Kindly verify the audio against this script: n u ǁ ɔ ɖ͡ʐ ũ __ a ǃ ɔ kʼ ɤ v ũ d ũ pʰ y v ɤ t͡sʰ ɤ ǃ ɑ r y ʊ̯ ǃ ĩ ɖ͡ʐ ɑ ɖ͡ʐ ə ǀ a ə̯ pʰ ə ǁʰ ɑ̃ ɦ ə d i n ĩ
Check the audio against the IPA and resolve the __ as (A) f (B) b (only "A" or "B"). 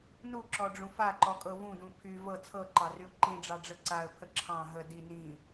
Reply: A